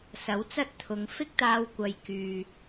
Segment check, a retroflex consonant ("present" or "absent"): absent